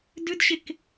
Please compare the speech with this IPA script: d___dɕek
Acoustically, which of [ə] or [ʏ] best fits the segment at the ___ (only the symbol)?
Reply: ʏ